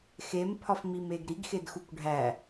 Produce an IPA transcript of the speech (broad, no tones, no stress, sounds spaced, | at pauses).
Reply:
x e m pʰ ɒ f m i m e ɡ ɾ i ɡ x e d x u kʷ ɖʱ æ